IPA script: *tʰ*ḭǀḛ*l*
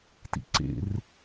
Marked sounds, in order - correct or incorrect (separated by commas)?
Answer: incorrect, incorrect